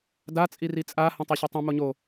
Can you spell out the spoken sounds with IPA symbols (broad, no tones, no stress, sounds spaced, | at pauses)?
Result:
d a t͡sʼ i r i t͡sʼ a h õ tˤ i ɕ o tˤ ĩ m o ɲ o